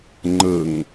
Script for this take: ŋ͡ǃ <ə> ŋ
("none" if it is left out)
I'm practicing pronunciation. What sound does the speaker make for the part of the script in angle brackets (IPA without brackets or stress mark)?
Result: ə